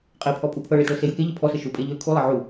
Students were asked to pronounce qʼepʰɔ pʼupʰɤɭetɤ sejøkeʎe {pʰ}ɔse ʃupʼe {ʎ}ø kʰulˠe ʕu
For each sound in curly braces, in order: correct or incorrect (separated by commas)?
correct, correct